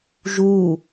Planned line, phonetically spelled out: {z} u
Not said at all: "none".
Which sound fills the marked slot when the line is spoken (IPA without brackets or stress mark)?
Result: ʒ